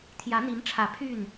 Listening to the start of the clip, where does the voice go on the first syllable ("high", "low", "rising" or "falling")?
rising